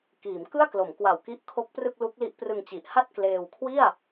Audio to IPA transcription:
k iː˩˦ m k ɯ˥˩ a̯ k l o˩˦ m k w a˨˩ w k i˦˥ ʔ kʰ o˦˥ k̚ p r ɯ˥˩ k̚ l u˦˥ k̚ l i˦˥ ʔ p r ɯ˧ ŋ t͡ɕ i˨˩ ʔ h a˥˩ t̚ k l eː˧ w kʰ w i˥˩ a̯

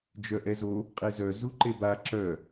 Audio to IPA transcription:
d͡ʒ œ ʔ ɛ z o | qʼ e z œ z u ǃ e b a ǁ œ

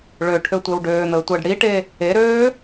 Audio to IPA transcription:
ɭ ø ʈʰ ø tʷ e w ɖ øː n̪ əː tʷ əː ɖ ɽ i ʈ e | e ɾ øː

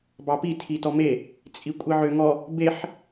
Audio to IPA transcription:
b ɑ p i tʰ i t ɔ m e | t͡sʼ i kʷʼ i ʕ ø ŋ ɔ | b e ħ

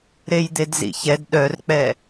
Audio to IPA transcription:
ɾ e j d̪ e d z ḭ ç ɛ d ɗ œ r k͡p ɛ

